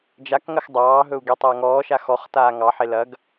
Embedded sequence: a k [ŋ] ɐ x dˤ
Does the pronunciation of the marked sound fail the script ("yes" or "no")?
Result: no